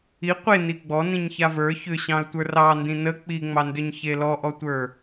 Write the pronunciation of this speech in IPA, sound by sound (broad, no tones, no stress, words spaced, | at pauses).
i qʷe niɡ͡bɔ nĩɲçavə˞ çʏɕɑ̃ə̯ tʷə˞rɑndĩ nə k͡piŋ͡mɑndʏɲ çelɔʔɔtʷə˞